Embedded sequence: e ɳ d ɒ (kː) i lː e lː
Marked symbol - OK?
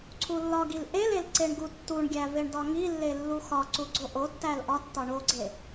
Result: no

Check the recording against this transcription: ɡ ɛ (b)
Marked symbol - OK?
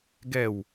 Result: no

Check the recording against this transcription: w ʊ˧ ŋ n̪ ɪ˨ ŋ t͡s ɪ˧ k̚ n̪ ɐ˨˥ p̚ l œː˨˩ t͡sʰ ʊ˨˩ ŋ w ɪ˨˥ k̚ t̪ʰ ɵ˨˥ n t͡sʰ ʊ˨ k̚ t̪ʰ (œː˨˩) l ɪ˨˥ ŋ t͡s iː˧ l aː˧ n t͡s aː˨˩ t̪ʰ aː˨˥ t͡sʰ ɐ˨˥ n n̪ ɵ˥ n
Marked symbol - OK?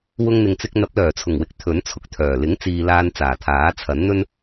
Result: yes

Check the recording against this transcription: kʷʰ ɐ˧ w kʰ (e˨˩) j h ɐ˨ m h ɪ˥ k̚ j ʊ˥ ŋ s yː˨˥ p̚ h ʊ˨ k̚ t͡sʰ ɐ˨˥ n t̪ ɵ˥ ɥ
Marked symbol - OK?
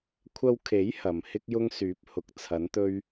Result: no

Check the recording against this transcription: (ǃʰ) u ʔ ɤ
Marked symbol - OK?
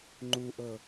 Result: no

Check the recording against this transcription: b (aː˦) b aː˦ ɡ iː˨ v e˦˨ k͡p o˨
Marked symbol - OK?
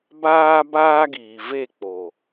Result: yes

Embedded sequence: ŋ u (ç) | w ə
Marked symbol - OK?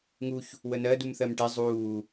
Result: yes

